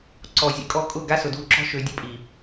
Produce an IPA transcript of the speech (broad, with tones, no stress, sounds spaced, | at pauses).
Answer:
ǀ ɔ˨ zʲ ə̰˦ kʼ ɔ˦ kʼ ʊ˦˨ ɡ a˦ s ʊ˨ d u˦˨ ǁ ɔ̤˦ ʃ ø˨ dʲ ə˦ pʼ i˨